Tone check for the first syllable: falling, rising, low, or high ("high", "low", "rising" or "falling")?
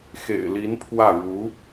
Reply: low